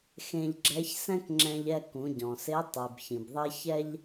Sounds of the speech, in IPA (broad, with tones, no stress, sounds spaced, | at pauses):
x ẽ˧ ʎ ɡ͡ǁ ɛ˧˥ ç s ɛ̃˥ k ŋ͡ǁ ɛ̃˧ ʎ ɛ˧ k ũ˩˧ ɟ ɔ̃˩ s e˧˥ tˤ i˩ b ç ĩ˩ b ðˤ ɛ˥ ç ɛ˥ ʎ